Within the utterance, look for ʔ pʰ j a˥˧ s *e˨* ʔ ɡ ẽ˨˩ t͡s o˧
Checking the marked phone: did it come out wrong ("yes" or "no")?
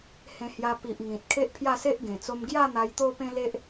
yes